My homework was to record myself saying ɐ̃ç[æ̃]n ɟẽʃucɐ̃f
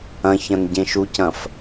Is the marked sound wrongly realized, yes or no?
yes